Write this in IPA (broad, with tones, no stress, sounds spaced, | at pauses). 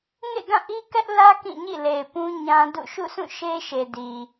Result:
ŋ ḛ˦˨ ɡ ã˦˨ ʔ i˦ k ɛ˦ ʔ l ä˦ k ĩ˦˨ ɲ ḭ˦˨ l e˨ ɪ̯ p ũ˦ ɲ ã˦ d ṵ˦˨ ʃ ṵ˦˨ sʰ ũ˦˨ ʃ e˦ ʃ e˨ d i˨